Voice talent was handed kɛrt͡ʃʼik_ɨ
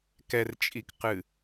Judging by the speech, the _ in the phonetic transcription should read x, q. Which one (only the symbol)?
q